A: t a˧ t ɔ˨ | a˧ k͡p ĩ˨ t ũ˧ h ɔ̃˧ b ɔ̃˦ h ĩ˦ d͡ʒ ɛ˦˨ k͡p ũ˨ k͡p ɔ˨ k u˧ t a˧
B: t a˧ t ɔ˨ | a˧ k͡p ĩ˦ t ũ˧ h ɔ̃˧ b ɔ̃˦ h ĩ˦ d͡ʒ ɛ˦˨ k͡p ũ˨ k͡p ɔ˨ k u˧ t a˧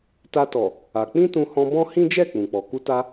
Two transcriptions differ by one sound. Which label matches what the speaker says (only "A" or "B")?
B